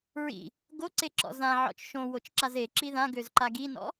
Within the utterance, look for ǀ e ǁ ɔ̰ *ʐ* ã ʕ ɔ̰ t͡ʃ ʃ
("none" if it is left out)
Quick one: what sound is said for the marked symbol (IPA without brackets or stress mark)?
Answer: z